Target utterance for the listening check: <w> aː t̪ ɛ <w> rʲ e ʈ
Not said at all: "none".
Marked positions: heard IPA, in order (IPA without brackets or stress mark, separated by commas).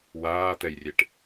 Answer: w, j